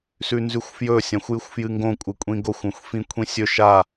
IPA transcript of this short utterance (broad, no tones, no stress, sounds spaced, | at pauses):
s ʉ n z ʉ xʷ f j ɵ sʲ ã xʷ j ɨ xʷ f j ɨ ŋ ɡ õ kʷʼ ɨ kʷʼ ĩ ɡ o xʷ õ xʷ f ĩ kʷʰ ĩ sʲ ɵ ʃ a